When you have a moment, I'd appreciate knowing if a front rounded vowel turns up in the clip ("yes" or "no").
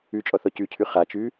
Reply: no